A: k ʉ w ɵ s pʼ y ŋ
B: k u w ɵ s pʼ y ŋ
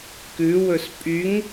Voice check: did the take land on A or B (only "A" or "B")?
A